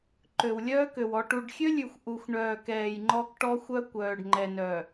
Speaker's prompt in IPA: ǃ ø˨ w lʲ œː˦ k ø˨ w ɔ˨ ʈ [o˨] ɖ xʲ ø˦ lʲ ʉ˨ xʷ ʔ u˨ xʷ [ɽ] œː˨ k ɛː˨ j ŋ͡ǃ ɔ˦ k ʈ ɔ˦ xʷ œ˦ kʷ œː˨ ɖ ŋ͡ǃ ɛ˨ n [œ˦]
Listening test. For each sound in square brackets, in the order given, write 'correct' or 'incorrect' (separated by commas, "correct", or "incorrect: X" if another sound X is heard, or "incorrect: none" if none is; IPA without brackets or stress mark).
incorrect: u˨, incorrect: ɳ, incorrect: œ˨